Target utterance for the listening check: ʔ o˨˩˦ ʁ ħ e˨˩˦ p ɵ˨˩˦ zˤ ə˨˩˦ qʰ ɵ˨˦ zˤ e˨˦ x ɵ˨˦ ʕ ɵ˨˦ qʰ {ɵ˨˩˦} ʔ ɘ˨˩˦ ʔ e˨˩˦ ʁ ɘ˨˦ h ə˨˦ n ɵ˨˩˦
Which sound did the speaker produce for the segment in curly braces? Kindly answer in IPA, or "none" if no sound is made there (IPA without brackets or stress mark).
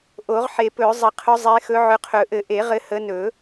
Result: ɵ˨˩˦